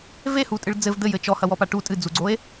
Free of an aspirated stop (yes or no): yes